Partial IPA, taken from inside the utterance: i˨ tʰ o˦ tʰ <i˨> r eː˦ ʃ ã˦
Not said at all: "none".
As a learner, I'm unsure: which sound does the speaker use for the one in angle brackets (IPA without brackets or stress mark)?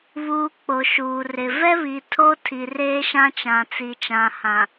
i˨